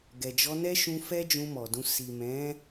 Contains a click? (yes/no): no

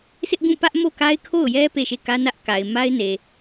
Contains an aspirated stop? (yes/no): yes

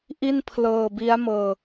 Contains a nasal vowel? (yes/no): no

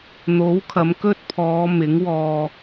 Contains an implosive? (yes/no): no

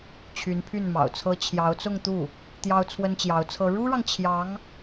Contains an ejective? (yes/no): no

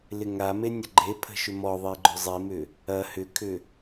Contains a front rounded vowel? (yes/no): yes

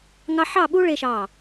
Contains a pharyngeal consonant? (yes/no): yes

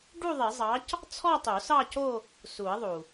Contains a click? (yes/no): no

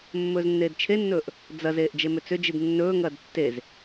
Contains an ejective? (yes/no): no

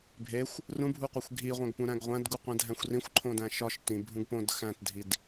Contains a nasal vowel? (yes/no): yes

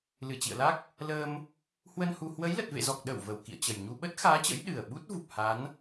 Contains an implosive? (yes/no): yes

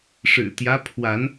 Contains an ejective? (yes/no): no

